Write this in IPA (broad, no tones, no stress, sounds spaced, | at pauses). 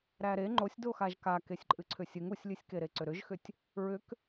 ɾ æ ɾ e ŋ͡ǃ o sʲ d o x a ʒ k a k e sʲ ǃʼ ɨ ǀʰ ʏ sʲ ɨ ŋ u sʲ lʲ ɨ sʲ k e ɾ e ǀ ʏ ɾ ʏ ʒ x ʏ tʲ | ɹ ʏ k